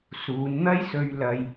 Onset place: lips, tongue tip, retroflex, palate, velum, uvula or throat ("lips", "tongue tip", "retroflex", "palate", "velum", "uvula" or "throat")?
tongue tip